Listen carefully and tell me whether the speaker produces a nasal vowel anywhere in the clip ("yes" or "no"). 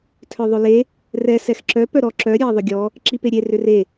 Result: no